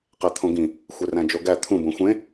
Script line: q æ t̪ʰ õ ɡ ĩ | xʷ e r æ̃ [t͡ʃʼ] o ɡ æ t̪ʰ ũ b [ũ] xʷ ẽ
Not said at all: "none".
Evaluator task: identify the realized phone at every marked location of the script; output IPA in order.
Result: d͡ʒ, õ

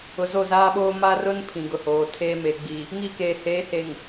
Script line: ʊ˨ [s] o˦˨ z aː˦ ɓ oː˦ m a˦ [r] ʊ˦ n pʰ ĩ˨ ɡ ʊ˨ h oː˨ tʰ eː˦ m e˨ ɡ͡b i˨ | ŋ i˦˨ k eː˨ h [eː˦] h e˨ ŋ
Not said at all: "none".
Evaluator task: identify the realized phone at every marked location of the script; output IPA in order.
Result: z, r, eː˨˦

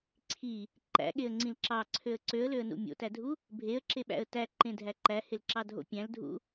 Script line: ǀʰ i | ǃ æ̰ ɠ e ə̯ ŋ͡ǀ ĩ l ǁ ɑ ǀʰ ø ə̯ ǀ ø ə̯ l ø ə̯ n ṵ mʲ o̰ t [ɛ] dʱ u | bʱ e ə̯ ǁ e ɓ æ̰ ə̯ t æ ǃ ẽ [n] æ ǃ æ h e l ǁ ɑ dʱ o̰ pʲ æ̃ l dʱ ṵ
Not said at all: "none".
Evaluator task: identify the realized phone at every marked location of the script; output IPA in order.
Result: æ, dʱ

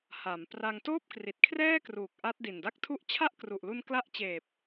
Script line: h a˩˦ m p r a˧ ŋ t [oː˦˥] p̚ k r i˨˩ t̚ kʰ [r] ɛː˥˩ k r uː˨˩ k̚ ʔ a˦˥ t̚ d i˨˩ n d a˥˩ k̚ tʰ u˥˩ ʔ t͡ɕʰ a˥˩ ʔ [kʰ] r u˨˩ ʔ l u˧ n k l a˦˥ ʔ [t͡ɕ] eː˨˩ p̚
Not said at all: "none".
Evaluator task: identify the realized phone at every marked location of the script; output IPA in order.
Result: oː˥˩, r, k, t͡ɕ

